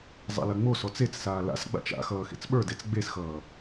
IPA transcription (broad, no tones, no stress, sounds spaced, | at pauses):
zˤ a̰ l ɐ ŋ͡m o s ɔ t͡s e t͡s s aː l a̰ s ɡ͡b a̰ t͡ʃ a̰ x ʌː x ḛ t͡s ɓ ə˞ d e t͡s ɡ͡b e s x ʌː